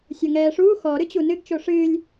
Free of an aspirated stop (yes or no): yes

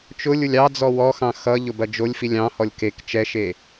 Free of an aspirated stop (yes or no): yes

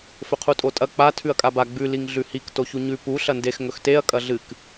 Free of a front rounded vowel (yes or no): yes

